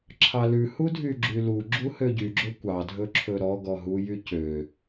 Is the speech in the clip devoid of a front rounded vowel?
no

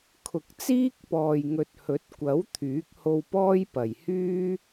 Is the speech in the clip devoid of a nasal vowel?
yes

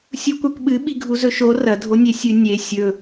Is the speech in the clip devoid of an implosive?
no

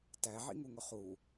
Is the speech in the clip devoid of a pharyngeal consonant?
no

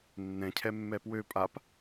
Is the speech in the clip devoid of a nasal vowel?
no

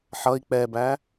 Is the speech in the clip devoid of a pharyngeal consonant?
no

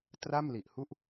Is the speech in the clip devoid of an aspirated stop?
yes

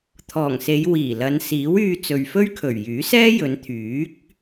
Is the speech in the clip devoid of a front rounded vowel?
no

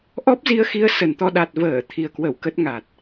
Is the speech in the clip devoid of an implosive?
no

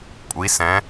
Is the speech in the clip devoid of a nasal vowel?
no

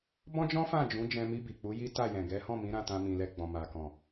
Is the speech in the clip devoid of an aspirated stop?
yes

